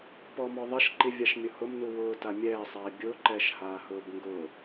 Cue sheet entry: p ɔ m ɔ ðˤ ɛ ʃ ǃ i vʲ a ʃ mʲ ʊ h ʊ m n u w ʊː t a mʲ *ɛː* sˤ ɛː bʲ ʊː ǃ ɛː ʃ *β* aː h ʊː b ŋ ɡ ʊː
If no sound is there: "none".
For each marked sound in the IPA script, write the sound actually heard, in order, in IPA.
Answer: ɛː, h

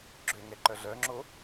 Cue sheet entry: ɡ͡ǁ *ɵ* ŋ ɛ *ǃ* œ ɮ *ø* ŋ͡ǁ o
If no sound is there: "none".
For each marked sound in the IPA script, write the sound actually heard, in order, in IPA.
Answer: ø, ǃ, œ

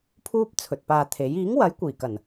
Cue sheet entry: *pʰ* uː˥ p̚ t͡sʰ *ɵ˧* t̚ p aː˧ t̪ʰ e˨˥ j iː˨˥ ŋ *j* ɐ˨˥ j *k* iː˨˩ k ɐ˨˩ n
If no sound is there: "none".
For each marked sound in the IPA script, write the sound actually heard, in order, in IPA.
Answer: pʰ, ɵ˨, w, kʷ

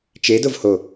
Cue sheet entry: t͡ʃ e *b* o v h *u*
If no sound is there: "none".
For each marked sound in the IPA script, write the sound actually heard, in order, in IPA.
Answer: d, o

